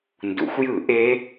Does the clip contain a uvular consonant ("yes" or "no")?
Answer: no